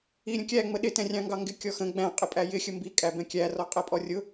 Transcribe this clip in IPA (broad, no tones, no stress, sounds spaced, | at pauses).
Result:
i ɾʲ ə̃ kʲ æ ŋ͡m ə ɗ ɪ t ɛ̃ rʲ ɑ̃ ŋ ɡ ɑ ŋ ɡ ɪ kʲ ɔ x ə̃ ɡ͡b æ̃ qʼ ɪ pʼ æ j ɪ xʲ ə m b i kʼ æ b ɛ̃ kʲ æ r ɔ qʼ ɛ pʼ ɔ rʲ ʊ